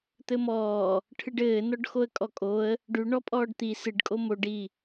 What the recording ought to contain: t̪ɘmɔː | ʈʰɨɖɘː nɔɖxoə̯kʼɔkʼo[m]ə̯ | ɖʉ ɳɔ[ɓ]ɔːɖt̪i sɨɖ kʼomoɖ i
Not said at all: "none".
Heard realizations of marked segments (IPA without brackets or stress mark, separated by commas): none, pʼ